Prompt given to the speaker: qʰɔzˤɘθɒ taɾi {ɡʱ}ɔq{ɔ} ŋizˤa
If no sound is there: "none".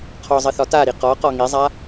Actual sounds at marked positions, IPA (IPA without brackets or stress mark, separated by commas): q, ɔ